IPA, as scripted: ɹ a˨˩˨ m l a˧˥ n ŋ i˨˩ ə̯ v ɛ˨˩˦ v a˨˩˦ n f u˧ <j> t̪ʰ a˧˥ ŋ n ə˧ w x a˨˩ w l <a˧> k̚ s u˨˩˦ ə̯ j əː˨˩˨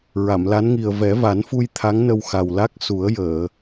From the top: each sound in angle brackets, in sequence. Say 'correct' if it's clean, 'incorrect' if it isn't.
correct, incorrect

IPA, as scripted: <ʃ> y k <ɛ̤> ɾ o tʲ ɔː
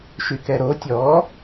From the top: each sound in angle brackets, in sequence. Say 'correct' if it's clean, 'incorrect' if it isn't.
correct, incorrect

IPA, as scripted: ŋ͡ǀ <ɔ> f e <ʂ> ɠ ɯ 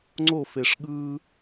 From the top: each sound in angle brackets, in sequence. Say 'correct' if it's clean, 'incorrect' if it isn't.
incorrect, correct

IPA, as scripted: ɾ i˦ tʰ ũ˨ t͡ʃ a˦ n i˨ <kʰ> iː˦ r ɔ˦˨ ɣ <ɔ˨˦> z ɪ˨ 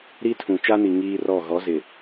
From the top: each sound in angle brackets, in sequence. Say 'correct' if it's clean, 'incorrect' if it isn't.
incorrect, correct

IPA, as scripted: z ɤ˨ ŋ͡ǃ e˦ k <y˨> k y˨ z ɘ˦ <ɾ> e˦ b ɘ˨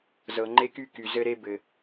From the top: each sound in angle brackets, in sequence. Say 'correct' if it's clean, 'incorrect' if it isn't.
incorrect, correct

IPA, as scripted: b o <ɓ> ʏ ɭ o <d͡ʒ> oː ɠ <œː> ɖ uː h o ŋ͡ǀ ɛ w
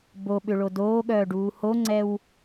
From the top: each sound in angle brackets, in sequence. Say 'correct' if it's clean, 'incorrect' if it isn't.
correct, incorrect, correct

